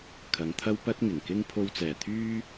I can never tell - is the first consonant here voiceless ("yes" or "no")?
yes